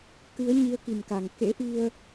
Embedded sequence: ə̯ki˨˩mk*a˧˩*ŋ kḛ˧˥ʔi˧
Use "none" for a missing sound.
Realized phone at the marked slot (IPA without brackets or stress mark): a˨˩